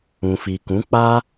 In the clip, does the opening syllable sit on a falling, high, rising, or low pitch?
low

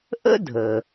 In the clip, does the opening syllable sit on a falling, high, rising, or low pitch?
high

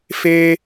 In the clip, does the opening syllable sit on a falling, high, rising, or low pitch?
high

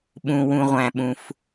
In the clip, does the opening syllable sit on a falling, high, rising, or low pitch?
low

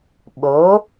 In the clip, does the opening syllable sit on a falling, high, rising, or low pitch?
rising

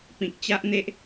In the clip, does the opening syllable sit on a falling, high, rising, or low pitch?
low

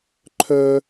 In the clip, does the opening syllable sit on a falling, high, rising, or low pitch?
high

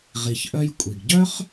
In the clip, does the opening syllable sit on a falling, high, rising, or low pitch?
low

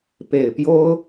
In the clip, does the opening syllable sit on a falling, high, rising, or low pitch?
low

